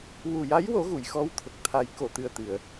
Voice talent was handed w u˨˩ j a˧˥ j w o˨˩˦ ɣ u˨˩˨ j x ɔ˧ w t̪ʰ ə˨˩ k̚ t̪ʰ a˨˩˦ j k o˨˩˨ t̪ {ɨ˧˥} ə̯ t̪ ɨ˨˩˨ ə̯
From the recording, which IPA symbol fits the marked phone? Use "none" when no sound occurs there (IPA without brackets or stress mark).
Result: ɨ˨˩